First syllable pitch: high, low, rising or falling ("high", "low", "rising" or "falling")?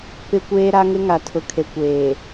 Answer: low